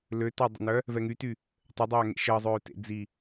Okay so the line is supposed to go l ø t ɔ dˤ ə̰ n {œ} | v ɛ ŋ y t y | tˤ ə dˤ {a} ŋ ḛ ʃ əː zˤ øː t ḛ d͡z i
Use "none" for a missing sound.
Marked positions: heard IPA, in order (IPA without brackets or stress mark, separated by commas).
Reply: œ, aː